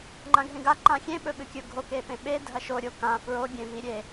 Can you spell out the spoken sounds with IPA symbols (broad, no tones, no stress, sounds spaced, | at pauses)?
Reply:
ŋ͡ǃ ã ɡʱ ẽ ɡ a ǃ ã xʲ ẽ ɓ ɵ ɓ ɨ kʲ ɵ ɡʱ o k e p ẽ ɓ e dʱ ɐ ʃ o ɾʲ o k ã f ɹ o ɡʲ ẽ v i ɾʲ e